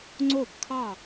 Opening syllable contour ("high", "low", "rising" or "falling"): falling